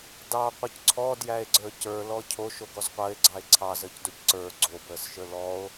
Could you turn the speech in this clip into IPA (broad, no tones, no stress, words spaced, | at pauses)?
dɑqʷəc ǀʰɔdjæe̯ɡ͡ǀə˞ cə˞lɔ cʰoʃoɡɔz qʷəːe̯ɡ͡ǀɑe̯ ǀʰɑzəːcdoc ǀə˞ ɡ͡ǀobəːsʃə˞ lɔo̯